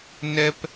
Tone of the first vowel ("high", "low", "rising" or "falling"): high